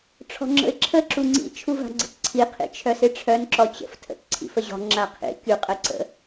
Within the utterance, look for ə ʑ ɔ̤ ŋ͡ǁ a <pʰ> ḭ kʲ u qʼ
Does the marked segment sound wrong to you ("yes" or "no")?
yes